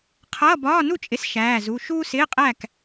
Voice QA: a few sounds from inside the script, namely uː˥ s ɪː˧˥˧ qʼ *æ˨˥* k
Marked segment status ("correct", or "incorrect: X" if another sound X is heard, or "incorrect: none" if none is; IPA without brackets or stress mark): incorrect: æ˥˨